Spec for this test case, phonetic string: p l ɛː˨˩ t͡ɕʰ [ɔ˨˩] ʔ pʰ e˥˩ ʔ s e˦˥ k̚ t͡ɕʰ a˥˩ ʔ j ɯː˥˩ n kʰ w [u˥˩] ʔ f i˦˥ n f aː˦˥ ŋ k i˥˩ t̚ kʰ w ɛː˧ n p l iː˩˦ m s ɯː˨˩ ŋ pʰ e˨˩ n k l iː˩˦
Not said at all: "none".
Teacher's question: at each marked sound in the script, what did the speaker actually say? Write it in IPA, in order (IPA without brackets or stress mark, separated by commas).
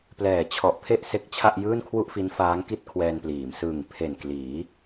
ɔ˨˩, u˥˩